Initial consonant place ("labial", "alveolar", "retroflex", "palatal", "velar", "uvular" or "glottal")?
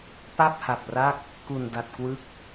labial